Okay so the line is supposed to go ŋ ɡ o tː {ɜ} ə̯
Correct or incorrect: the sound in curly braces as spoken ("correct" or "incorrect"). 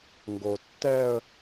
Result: incorrect